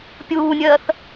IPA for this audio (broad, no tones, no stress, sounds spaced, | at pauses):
pʲ uː nʲ ɜː θ